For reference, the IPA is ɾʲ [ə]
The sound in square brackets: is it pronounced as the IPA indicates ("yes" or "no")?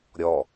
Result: no